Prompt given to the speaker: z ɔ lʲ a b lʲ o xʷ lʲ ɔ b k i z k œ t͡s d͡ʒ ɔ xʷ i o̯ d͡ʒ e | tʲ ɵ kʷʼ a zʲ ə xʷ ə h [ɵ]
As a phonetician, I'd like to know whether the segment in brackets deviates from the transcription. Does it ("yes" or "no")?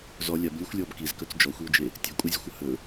no